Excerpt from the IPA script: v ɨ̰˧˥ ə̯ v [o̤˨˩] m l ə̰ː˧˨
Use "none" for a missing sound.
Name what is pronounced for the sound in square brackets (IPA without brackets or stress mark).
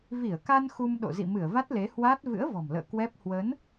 ɔ̤˨˩